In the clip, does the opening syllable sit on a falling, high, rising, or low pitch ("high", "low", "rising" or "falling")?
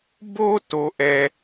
high